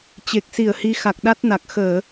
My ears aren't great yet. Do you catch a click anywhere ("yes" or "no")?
no